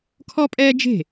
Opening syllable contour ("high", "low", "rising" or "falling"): high